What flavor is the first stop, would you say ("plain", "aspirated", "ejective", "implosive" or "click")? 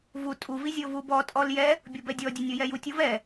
ejective